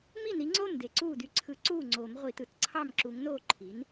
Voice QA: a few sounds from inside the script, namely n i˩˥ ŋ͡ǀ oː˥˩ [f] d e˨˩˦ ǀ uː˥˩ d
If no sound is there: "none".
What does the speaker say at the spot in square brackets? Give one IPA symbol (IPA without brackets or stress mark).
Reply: m